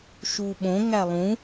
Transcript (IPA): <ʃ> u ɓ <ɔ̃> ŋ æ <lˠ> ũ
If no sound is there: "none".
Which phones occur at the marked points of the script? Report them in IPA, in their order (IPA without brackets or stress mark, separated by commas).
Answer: ʃ, õ, lˠ